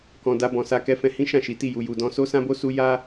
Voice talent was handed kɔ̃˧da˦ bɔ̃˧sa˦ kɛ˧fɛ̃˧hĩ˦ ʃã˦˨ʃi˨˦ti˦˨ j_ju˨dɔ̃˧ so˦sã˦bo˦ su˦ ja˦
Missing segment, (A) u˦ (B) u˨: B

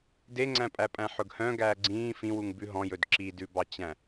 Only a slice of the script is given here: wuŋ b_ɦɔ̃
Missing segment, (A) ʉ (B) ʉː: A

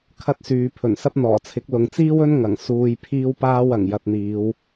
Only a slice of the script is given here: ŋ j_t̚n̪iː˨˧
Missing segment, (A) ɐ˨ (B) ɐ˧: B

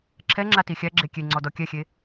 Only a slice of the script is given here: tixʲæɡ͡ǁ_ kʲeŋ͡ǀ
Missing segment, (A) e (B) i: A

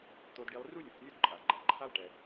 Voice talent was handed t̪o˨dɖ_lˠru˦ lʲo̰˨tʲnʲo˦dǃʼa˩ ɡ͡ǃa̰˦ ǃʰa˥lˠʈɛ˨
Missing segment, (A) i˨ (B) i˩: A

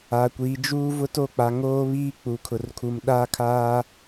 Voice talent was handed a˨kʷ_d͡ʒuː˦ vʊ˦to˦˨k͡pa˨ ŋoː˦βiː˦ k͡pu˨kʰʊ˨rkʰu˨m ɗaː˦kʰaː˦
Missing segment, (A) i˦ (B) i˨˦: B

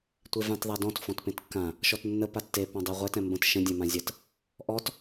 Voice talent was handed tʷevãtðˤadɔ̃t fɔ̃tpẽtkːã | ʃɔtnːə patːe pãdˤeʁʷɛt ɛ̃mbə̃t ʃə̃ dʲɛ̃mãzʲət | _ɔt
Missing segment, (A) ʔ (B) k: A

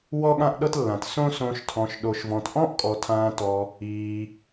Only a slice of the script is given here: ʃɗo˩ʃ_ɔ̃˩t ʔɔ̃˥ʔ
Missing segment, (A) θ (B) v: B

